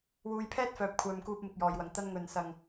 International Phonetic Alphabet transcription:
wuː˨jpʰɛː˥t̚ fœː˨p̚kʷʰœː˨mkuː˧p̚ mɪ˧k̚jɔː˨jwɐ˨ŋ t̪ɐ˥nŋɵ˧n sɐ˧ŋ

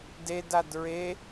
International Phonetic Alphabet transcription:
dedad ɹe

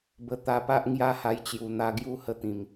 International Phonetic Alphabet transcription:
bə˨˩ t̪a˧pa˦ʔ ŋja˦ha˧jt͡ɕju˨˩ n̪a˧ɡju˥˧ hə˥˧t̪ĩ˨˩m

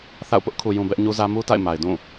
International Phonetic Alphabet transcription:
θa̰˦˨ʊ̯ pʊ˦ʔkʰu˨jũ˨ bɛ˦ʔɲu˦zä˦ mu˦ta̰˦˨ɪ̯ma˨ɪ̯ dũ˦˨

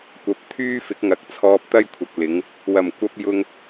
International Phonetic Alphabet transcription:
kʷɐ˨˥p̚t̪ʰyː˥fɪ˨˥k̚ŋɐ˨˥k̚ t͡sʰɔː˧p̚t̪ɐ˥jkʷʰɐ˨k̚ lɪ˨˧ŋ | wɐ˨˩mkʷɐ˧p̚ jʊ˧ŋ

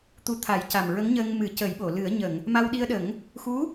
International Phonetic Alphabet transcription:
t̪u˧t̪ʰa˨˩˦j ca˨˩mɹə˧˥ŋɲəː˧ŋ mɨ˨˩˦cə˨˩˦jɓo˨˩˨ lɨ˨˩˦ə̯ ɲə˨˩˨ŋ | ma˧wɗi˧ə̯ɗə˨˩˦ŋ | xu˧˥

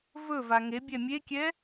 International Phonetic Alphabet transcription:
vɵva ŋebʲɛ mʲekʲɛ

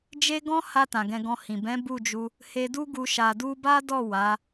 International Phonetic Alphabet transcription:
d͡ʒe˦ ɡɔ̃˦ha˧ tã˨ɡɛ̃˧ɡɔ̃˧hĩ˨ bɛ̃˨˦ bu˦˨d͡ʒu˧ | he˧du˦ɡu˧ ʃa˨du˧ba˦dɔ˦˨ wa˨˦

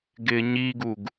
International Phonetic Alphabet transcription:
ɡɪːɲiɡuɡ

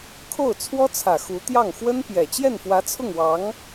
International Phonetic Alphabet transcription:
kʰo˥˩ʊ̯ t͡sʰwɔ˥t͡sʰä˨˩ xu˧˥t̪jɑ˥˩ŋ xwə˥npjɛ˨˩ t͡ɕjɛ˥˩nfwä˧˥t͡sʰʊ˥˩ŋwɑ˧˥ŋ

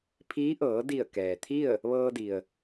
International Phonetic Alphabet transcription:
pʰiː˧˥ʔɤː˩˧ di˧˩ə̯ kɛː˩t̪ʰi˥˨ə̯ | ʋɤː˧di˩ə̯

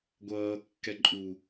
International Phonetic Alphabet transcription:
ɡʷʌːkːɛ ǃʼu

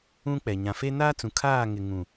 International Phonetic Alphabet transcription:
ũ˦k͡pɛ˨ ɲã˨fe˦ naː˦t͡sũ˨ kʰaː˦˨ŋɪ˨ ŋũ˨

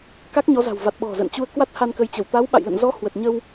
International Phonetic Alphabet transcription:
ka˦˥k̚ɲɔ˨˦za̤˨˩wva˨˩t̚ ɓɔ̤˨˩zə̰ː˧˨n t͡ɕu˧ə̯ kwa˦˥t̚ha˧nkə˨˦jt͡ɕə˧˩w t̪a˨˦wɓa̰˧˨jlə̰˧˨n zɔ˨˦ hwə˨˩t̚ɲə˧w

